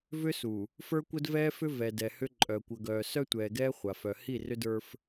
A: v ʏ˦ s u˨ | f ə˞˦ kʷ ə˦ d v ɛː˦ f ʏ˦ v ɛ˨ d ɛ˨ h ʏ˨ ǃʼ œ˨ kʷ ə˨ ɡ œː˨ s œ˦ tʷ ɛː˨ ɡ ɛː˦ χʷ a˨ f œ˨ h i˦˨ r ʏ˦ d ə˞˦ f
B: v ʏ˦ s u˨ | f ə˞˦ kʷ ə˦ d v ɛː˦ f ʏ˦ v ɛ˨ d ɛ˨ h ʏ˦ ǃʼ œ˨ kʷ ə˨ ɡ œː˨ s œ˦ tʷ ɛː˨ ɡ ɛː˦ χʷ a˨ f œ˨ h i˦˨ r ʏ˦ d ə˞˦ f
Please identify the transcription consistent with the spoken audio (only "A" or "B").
B